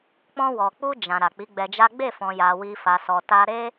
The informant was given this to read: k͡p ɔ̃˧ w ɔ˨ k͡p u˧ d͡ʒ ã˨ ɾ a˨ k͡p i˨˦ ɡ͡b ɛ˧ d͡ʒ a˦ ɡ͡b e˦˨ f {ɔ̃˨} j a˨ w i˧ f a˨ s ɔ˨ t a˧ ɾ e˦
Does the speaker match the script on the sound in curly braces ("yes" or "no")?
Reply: yes